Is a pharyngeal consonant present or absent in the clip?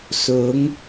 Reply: absent